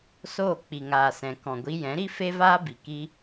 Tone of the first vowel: falling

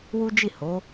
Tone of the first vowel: high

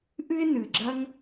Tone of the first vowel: high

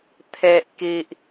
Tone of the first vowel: low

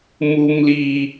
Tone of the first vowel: high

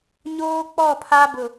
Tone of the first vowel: high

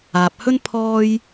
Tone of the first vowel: low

